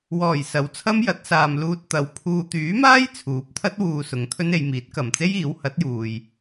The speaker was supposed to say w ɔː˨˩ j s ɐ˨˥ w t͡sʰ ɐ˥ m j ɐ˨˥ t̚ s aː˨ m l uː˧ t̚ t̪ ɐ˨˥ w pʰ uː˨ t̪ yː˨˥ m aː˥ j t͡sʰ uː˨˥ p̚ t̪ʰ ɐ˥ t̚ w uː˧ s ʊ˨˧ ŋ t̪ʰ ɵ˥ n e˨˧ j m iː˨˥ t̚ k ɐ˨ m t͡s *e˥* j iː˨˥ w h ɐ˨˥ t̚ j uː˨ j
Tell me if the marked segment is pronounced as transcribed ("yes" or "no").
yes